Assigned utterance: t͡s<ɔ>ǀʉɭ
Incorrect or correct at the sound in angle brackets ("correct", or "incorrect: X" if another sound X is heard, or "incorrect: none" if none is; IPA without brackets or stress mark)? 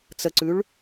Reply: incorrect: ə